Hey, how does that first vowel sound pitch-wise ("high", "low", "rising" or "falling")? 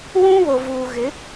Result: high